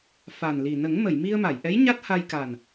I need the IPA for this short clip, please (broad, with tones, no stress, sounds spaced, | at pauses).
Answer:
f a˨˩ n l i˨˩ n ə˨˩˦ ŋ m ə˨˩˨ j m i˧ ə̯ m a˨˩˨ j ʔ ɛ˧˥ j ɲ a˦˥ t̚ h a˧ j k a˨˩ n